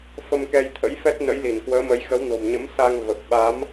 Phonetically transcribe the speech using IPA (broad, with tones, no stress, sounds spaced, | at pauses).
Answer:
f ə˧ m k ɛ˧ j t̪ʰ ə̰˧˥ j f ɛ˦˥ t̚ n ə̰˧˥ j l i˧˩ n k w əː˨˦ m ə˨˦ j x ə˨˦ w n o̤˨˩ m ɲ ə̰˧˥ m s a˧ ŋ v ə˨˩ p̚ ɓ a˨˦ m